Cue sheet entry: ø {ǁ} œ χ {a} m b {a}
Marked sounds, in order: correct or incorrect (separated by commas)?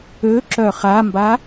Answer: correct, correct, correct